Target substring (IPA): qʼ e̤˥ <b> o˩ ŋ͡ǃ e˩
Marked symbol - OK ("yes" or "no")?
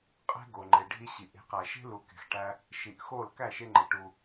no